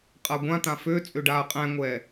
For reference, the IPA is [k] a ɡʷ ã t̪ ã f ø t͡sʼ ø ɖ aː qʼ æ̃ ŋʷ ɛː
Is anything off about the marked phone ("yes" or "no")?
yes